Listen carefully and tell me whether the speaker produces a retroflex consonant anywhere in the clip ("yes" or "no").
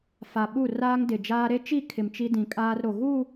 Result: no